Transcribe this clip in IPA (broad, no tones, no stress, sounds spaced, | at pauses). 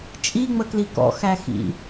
t͡ʃʼ i ŋ͡m ə k l i k ɔ̰ x æ x ḭ